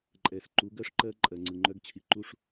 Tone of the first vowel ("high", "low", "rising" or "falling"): low